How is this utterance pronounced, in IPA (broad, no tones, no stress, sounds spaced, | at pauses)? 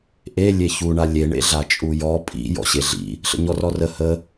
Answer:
ʔ e lʲ e ç u ɳ a lʲ e ɳ ḛ ɮ a t͡ʃʼ u j ɔ pʼ ḭ j ɔ̰ ɕ e ɮ ḭ | ɬ ə̰ ɲ ɔ r ɔ r ə h ə